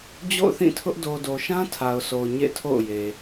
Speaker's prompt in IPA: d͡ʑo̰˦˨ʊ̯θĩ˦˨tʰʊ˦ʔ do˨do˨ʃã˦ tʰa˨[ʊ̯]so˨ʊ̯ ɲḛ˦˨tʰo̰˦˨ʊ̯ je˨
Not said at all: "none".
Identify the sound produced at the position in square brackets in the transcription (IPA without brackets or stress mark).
ʊ̯